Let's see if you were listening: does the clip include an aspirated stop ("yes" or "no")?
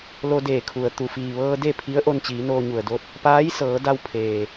yes